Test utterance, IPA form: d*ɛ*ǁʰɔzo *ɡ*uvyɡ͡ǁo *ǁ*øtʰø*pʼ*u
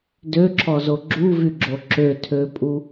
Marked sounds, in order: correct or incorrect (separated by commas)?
incorrect, incorrect, correct, correct